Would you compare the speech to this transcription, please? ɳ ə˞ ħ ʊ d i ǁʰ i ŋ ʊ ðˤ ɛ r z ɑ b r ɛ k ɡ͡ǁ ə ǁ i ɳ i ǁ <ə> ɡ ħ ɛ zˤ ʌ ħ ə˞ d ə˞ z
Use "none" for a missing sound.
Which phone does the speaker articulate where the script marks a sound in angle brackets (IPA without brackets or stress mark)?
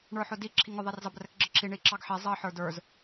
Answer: ɑ